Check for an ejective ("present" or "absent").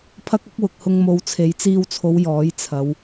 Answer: absent